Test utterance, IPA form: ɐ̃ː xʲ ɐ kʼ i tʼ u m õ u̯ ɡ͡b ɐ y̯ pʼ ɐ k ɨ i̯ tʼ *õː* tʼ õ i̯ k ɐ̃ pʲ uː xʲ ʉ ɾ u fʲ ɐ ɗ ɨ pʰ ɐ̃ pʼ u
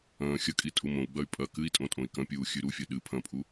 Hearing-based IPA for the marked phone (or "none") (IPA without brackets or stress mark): õ